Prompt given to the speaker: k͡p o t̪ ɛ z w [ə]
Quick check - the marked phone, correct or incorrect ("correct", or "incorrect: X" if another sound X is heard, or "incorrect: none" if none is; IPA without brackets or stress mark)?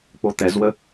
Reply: correct